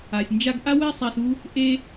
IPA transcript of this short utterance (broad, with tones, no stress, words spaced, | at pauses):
a˨sʲnd͡ʒa˦ɡ ʔa˦wɛ˦sˤa˧s u˦ | ʔe˦